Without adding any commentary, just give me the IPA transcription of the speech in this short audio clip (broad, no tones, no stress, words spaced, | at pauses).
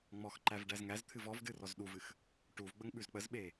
ŋ͡mɔxǃæv ɖæzŋæzt̪ʰɨv ɔvdɨ rɔzɗuvɨx | ʈuvɡ͡bəŋ ɓʉzk͡pəzɓe